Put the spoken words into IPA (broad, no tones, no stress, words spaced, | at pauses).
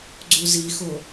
ɡ͡ǀuzixo